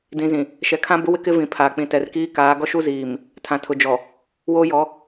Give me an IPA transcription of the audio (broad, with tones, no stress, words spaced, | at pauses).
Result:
dĩ˨zĩ˨ | ʃɛ˨kʰã˦bʊ˦ wɪ˦kɪ˦ vĩ˨pʰaː˨ k͡pĩ˨tɛ˨rkiː˦ kaː˨˦ ɡɔ˦ʃu˦ ziː˨m | tʰã˨tʰʊ˨d͡ʒɔ˨ | woː˦jɔ˨˦